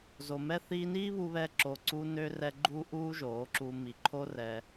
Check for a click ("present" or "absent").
present